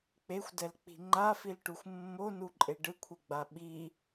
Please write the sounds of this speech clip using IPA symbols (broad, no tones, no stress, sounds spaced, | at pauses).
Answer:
k͡p e xʷ d ɛ l k͡p i̤ ŋ͡ǃ a f i l ʈ u xʷ mː o n u ǃʼ e ɖ ɯ kʷʰ e ɡ͡b a ɓ i